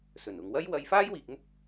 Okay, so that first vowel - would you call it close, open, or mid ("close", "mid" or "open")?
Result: mid